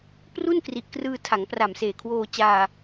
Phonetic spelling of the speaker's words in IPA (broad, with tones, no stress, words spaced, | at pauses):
pru˥˩nkri˨˩ʔkrɯː˧ tʰa˩˦ŋpra˨˩m seː˨˩kʰwoː˧t͡ɕaː˧